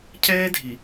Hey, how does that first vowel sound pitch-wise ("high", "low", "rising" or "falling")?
high